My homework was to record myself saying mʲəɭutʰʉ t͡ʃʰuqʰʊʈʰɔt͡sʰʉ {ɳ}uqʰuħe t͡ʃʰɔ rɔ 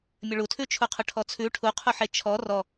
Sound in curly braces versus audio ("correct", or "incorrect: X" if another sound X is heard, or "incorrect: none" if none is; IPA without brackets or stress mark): incorrect: ʈʰ